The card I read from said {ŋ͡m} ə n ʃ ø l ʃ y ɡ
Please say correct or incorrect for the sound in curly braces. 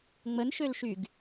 correct